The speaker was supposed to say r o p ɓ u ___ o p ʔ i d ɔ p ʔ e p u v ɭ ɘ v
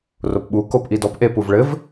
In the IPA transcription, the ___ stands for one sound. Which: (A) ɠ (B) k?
B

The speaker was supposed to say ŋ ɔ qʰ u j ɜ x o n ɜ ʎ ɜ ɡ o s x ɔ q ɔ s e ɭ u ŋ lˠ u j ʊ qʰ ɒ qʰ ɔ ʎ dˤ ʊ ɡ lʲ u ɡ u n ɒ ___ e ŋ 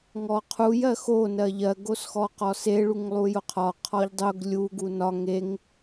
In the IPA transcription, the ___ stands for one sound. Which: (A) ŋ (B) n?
A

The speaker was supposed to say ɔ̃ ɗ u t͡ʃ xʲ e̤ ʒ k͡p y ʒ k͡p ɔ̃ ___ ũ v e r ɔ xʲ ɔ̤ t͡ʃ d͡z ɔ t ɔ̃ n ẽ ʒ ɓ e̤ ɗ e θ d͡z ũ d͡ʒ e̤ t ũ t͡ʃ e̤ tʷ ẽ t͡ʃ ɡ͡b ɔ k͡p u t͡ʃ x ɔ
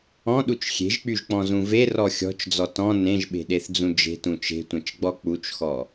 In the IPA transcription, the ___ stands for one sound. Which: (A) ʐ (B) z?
B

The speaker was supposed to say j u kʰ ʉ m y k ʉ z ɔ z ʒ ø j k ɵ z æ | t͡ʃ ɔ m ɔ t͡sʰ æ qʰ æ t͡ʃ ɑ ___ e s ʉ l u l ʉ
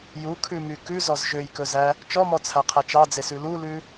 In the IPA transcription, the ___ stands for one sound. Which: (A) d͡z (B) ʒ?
A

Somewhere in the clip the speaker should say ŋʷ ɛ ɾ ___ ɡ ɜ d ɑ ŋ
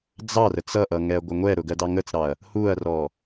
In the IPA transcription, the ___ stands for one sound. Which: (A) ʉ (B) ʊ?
B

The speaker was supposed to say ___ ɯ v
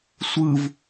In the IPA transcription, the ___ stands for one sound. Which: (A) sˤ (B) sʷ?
B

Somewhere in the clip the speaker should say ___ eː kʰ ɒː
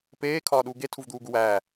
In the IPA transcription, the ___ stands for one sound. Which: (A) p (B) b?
A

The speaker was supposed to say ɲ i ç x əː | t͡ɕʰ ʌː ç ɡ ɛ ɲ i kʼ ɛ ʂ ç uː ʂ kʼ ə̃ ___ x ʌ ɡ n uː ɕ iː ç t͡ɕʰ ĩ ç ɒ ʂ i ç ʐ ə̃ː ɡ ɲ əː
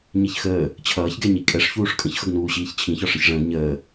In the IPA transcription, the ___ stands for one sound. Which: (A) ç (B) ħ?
A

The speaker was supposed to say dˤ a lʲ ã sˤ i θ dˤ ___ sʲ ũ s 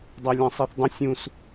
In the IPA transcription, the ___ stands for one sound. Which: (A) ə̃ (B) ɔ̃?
A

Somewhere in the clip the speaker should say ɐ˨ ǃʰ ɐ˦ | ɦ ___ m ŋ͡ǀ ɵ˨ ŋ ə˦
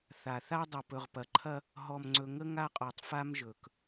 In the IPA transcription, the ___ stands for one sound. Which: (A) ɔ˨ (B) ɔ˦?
A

